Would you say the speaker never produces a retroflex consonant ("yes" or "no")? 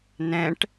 no